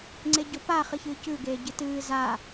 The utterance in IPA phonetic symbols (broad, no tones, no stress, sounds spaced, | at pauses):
ŋ͡ǀ e ɟ o p a χ ɨ ç ɨː c ʉ ɡ eː ɟ ɨ t ɨː z a